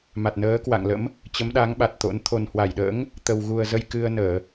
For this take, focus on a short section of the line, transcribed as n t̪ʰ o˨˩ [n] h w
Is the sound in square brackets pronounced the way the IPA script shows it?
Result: yes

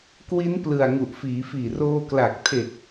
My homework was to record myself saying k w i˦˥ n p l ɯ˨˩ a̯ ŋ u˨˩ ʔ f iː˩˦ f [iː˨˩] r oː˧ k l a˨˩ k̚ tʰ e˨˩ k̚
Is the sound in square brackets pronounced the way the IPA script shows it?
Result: yes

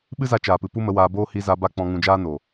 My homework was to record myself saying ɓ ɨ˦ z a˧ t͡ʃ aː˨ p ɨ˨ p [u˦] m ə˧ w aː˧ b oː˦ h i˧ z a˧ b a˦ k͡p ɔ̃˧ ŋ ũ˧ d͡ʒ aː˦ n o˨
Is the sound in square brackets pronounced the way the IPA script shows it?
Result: yes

